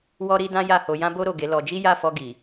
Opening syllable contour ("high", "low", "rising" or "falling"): high